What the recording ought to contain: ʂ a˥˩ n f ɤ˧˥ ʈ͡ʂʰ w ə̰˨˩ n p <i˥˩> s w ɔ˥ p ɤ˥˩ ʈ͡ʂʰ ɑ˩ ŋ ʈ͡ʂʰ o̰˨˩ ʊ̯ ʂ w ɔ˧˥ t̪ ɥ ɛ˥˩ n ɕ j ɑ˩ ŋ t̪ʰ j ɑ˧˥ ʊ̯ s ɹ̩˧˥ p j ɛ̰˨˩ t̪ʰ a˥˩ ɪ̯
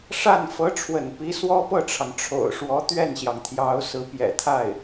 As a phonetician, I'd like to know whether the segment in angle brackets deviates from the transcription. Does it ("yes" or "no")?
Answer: yes